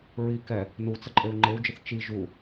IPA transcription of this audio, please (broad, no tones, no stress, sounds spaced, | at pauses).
ɹ i k ɛ | n u t͡s ə ǃʼ e u̯ ŋ͡ǃ e u̯ d͡ʒ ə θ t͡ʃ i ʒ u